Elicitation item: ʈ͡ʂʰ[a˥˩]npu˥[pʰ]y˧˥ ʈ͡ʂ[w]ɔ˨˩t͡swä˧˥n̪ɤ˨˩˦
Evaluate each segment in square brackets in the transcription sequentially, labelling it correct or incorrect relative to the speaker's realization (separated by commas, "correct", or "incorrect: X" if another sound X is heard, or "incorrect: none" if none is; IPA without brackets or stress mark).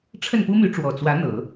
incorrect: ə˥˩, incorrect: m, correct